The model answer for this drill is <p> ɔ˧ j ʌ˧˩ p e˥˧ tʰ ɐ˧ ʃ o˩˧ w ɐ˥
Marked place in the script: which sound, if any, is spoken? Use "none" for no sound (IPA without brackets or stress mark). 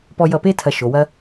p